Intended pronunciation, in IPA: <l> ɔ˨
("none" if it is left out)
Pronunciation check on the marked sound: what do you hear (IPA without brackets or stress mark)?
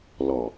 l